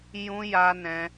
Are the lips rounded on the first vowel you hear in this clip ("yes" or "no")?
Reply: yes